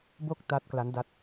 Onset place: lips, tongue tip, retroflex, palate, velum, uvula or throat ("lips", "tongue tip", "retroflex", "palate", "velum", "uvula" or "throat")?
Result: lips